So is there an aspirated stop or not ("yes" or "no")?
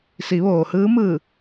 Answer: no